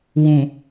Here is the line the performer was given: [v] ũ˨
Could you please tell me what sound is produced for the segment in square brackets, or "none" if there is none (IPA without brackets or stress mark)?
w